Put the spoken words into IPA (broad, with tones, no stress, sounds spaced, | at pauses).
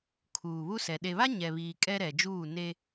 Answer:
kʰ uː˨ β u˦ s ɛ˨ ɗ e˨ β a˦ ɲ ɛ˨ β iː˨ kʼ ɛ˦ ɾ ɛ˨ d͡ʒ uː˦˨ n e˦